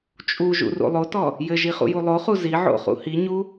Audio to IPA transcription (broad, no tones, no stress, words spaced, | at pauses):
t͡ʃʼuʒṵ rṵlˠotɔ | jɘʒi χṵjulˠoχu ziʕo̰ χṵhiɲu